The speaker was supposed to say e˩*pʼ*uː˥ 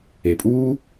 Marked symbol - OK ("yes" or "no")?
yes